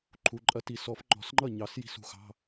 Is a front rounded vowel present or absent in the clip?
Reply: absent